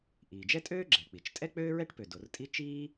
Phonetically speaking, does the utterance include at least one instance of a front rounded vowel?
yes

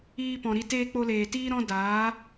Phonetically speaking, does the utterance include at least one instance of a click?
no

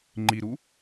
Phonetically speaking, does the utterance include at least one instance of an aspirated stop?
no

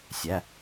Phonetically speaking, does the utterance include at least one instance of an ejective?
no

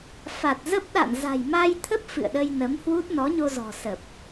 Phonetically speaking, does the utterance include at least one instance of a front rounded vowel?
no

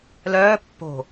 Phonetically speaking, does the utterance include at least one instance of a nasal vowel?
no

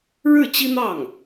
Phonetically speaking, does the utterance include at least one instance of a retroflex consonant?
yes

